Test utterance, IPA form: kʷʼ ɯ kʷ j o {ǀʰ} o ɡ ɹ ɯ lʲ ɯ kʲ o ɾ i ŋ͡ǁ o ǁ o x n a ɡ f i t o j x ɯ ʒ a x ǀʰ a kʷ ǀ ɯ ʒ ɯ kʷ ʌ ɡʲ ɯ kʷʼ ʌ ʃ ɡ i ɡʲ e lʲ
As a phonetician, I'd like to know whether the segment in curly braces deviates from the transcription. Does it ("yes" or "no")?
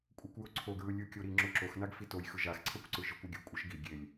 no